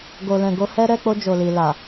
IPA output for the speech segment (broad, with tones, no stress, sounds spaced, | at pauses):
ɡ o˨ l ɛ̃˨ ɡ o˧ h ɛ˦ ɾ ɛ˦˨ k͡p o˧ d͡ʒ o˨ l i˨ l a˨